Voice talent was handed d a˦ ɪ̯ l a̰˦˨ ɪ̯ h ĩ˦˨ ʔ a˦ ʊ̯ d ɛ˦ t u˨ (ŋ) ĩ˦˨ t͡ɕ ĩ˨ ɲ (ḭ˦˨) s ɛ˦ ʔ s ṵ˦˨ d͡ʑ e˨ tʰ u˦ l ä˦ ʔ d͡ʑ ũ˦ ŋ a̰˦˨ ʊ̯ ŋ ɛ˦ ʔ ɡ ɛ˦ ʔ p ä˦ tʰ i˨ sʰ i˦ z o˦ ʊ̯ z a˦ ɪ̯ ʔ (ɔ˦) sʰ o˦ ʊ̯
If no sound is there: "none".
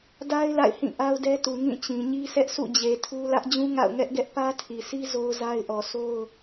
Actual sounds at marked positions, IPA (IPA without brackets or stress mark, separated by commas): ŋ, i˦, ɔ˨